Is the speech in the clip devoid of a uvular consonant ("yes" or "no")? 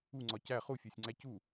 no